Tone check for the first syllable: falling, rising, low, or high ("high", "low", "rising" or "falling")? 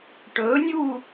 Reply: rising